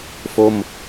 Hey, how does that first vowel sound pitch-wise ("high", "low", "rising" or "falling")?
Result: falling